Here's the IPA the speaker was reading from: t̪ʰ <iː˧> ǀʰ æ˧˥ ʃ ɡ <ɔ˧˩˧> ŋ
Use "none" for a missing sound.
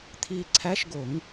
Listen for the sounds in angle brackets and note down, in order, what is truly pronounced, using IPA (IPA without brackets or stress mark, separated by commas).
iː˧, o˧˩˧